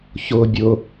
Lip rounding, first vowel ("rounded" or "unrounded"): rounded